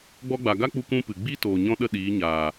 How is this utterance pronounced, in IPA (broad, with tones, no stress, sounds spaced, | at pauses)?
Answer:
ɡ͡b ɔ˧ ɡ͡b a˨ ɡ a˦ k͡p u˧ k ũ˦ p ɨ˨ ɡ͡b i˦ t oː˨ ɲ ɔ̃˦ ɗ ə˦˨ ɗ iː˨˦ ɲ aː˨